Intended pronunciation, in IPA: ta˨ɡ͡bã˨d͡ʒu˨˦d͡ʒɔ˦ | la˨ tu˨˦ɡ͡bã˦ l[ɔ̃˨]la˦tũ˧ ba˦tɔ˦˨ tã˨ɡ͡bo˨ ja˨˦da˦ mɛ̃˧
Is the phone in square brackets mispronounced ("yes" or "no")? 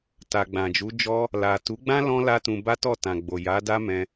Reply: yes